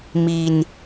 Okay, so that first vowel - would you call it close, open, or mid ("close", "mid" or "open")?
close